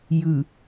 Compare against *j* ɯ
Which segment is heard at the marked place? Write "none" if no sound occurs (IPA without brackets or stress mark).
j